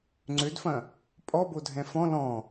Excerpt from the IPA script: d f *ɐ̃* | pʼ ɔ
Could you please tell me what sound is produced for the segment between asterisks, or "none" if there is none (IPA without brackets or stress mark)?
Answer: ɐ̃